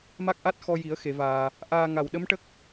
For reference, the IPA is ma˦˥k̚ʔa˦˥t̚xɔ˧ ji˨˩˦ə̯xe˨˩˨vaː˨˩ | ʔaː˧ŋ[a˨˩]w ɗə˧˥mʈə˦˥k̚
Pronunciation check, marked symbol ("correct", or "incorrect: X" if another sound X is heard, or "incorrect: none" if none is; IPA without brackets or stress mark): correct